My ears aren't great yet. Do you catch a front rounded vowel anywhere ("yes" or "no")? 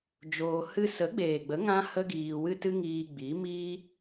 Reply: no